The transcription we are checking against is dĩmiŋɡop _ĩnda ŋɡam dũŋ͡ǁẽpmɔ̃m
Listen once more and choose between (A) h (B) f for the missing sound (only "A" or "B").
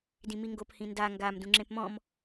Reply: A